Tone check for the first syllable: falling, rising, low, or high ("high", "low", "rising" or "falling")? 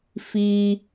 high